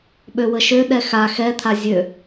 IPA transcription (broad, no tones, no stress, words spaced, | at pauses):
ɓøwəʃø ɗɛxa xɛt̪ʰa zʲø